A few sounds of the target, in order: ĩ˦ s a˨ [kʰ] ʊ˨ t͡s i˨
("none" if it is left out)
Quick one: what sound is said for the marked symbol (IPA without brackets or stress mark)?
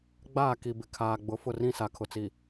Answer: kʰ